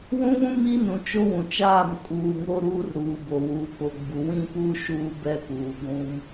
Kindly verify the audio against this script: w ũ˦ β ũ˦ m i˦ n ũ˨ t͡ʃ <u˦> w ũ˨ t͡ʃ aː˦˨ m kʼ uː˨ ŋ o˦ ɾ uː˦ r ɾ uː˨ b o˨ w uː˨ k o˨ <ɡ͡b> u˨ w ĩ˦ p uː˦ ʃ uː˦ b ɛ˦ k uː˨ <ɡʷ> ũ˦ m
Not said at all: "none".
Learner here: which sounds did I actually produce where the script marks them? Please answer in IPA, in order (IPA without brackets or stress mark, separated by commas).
o˦, ɡ͡b, ɡʷ